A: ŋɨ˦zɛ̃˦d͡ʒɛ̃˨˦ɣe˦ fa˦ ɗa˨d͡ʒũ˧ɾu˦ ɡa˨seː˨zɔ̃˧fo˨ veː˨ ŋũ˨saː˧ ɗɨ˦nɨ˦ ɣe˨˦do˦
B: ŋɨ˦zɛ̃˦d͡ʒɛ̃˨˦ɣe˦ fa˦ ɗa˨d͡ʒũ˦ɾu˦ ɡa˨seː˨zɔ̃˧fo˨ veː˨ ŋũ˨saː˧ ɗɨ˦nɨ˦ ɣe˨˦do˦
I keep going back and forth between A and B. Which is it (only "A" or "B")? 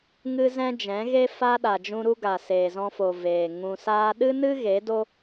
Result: A